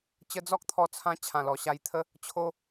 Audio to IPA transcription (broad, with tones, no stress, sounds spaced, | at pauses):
t͡ɕ ə˧ d͡z ɔ˦ k̚ t̪ʰ ɔ˧ t͡sʰ ã˧ t͡ɕʰ ã˨˩ l ɔ˨˩ ɕ a˧ j t̪ʰ ə˦ | t͡ɕʰ o˦